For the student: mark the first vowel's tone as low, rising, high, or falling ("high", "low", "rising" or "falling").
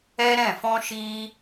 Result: high